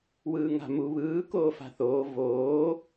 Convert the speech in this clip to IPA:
wɯːŋa̤mu βɯː koːfa̤θoː voː

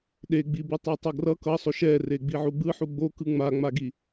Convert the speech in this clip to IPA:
ɗeɡ͡bi bɯtˤutˤʌɡrʌ kʌsˤoʃ ɛ reɡ͡biʕuɡ͡bɯ ħuɡ͡bokɯ ŋ͡maŋ͡maɡi

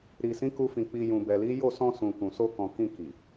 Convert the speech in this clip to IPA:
ɾi˨ sĩ˨˦ku˧fĩ˨ k͡pi˨ jũ˨bɛ˨li˨˦ jo˦˨sɔ̃˧sũ˨ kũ˨so˧kɔ̃˨ kĩ˧ ki˨

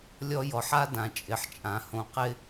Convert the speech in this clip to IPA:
lʲɔ˦jɔ˨ħ a˦ dã˨t͡ʃʼɪ˨ħt͡ʃʼã˨ hõ˨qɪ˦

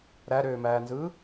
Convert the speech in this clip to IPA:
ɾæɾøːmæːnzɯː

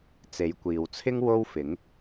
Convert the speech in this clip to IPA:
t͡se˨˧jkʷiː˨wt͡sʰɪ˥ŋ wo˥wfɪ˨˥ŋ

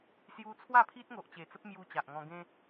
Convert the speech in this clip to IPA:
sju˧ t͡sʰwa˥˧pʰi˦t̚ŋo˨ʔt͡ɕe˨˩ t͡sə˦p̚mju˧ t͡ɕa˨ʔŋɔ̃˧ɡẽ˦

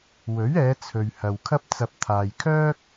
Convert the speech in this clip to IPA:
wɵ˨˥ɥɛː˨˧ t͡sʰɵ˨ɥhɐ˨wkʰɐ˥p̚t͡sɐ˧p̚ t̪ʰaː˨jkʰœː˥k̚

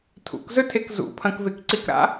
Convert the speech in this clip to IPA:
tʰṵkzɵtʰek zṵpʰɐ̃kvekǀik ɾa̰

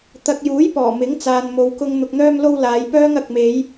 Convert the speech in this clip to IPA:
t̪ɐ˨k̚juː˨˥j pɔː˨˩ mɪ˨˥ŋ t͡saː˨nmo˨˧wkʊ˧ŋ n̪ʊ˨k̚n̪œː˧mlo˧w laː˨˧jpœː˥ŋ ɐ˨k̚me˨˧j

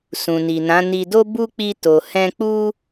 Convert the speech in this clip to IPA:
sũ˨ni˨nã˨˦ ni˧do˦bu˦ k͡pi˦to˧hɛ̃˦ k͡pu˦

